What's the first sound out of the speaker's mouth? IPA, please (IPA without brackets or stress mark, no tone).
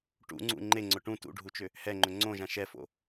ʈ